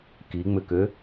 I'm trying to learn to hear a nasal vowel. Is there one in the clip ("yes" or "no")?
no